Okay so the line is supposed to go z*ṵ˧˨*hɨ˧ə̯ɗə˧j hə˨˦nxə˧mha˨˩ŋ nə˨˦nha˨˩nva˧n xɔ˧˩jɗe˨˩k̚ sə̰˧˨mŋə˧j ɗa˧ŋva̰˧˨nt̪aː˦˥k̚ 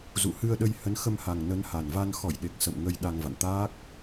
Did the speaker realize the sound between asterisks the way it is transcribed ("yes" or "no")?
yes